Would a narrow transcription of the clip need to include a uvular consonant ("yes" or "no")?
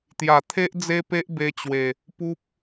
no